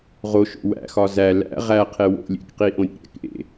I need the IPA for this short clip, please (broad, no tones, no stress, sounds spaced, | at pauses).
ʁ o ʃ o̰ w æ̰ x ɒ z æ l æ̰ ʁ æ qʰ e w o̰ lʲ ḛ k q i ʔ õ ɾʲ ḛ ɾʲ æ̰ k ʔ ḛ